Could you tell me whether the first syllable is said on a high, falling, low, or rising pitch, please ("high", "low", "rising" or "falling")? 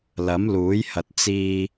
rising